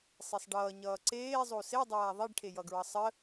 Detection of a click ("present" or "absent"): present